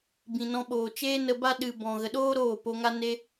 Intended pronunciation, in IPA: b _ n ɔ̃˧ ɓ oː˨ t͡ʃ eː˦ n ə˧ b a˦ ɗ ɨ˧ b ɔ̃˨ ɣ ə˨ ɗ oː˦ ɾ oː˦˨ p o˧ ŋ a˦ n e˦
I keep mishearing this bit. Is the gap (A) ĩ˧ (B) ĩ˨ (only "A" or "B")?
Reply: B